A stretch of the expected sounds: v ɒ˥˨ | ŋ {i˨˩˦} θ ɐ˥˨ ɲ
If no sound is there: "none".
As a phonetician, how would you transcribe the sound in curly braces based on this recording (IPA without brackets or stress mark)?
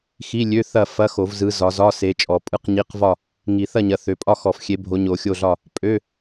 i˨˩˦